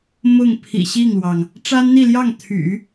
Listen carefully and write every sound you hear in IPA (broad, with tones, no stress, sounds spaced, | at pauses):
m ʊ˥˩ ŋ pʰ ḭ˨˩ ɕ i˥˩ ŋ l w ɑ˩ ŋ | ʈ͡ʂ a˥ n n̪ i˥˧ l j ɑ˥˩ ŋ t̪ʰ y̰˨˩˦